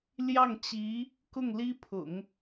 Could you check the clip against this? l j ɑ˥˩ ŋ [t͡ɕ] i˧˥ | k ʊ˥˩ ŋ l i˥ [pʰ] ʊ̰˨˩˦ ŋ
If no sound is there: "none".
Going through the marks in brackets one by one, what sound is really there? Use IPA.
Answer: t͡ɕ, pʰ

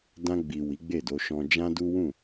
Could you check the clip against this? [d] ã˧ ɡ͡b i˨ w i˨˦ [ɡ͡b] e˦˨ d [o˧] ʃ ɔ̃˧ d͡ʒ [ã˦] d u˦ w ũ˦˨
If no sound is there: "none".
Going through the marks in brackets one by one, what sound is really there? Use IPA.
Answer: d, ɡ͡b, o˧, ã˦

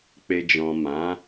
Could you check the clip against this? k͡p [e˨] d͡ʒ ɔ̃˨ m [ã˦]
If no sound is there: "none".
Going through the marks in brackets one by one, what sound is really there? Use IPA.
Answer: e˨, ã˨˦

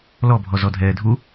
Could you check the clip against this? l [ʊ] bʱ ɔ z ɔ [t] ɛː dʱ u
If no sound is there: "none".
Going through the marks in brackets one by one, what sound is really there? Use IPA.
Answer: ɔ, dʱ

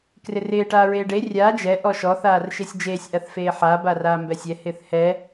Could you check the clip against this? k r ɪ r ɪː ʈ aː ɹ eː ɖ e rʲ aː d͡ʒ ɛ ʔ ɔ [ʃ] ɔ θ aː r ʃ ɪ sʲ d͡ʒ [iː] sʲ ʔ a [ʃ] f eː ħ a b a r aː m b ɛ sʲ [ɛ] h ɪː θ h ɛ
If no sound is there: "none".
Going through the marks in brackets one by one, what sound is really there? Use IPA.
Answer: ʃ, eː, θ, ɛ

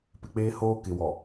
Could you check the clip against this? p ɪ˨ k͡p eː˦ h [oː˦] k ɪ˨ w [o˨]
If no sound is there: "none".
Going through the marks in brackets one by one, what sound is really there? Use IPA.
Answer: oː˦, ɔ˨

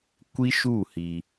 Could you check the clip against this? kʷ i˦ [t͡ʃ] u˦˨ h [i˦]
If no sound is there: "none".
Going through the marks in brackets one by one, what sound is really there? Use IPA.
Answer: ʃ, iː˦

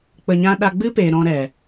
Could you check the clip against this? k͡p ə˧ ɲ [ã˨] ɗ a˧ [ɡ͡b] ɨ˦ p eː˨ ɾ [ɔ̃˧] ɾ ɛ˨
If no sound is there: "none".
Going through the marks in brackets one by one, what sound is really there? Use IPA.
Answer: ã˦, ɡ͡b, ɔ̃˧

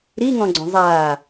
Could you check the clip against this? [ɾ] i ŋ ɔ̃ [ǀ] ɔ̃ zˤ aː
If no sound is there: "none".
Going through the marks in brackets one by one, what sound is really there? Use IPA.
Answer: ɾ, ɡ͡ǀ

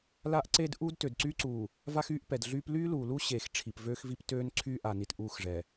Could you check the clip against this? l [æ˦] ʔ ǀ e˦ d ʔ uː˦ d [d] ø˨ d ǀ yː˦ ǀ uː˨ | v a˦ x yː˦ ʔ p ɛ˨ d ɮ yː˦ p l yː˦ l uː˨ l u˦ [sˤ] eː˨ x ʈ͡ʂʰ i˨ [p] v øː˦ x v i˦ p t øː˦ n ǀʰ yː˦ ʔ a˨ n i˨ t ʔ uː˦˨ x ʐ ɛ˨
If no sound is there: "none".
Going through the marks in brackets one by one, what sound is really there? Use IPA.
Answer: a˦, t, ɕ, p

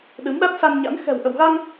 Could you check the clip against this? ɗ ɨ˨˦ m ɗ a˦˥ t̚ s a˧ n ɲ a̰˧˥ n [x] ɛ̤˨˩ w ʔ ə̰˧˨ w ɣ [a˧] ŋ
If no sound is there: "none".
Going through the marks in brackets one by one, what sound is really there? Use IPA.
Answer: x, a˧

